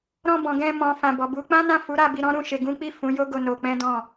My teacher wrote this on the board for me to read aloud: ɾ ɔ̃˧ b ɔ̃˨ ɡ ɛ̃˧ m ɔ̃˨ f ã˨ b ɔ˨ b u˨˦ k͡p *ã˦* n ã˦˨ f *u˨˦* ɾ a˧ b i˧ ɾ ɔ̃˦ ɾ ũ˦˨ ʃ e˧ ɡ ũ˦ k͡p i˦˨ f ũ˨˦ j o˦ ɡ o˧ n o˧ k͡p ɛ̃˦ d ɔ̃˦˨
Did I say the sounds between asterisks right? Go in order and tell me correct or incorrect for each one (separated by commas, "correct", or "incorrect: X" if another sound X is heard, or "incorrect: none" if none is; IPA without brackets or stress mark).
correct, correct